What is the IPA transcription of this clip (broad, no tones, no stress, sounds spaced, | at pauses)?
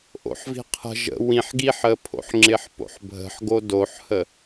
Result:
ʔ o̰ ħ v i̤ qʰ ə̤ ʒ ə̰ w ĩ ħ ɡ i ħ ə pʰ o̰ ħ ŋ͡ǁ ɪ ħ p o̰ ħ bʱ ə̤ ħ ɡ o d o ħ h ə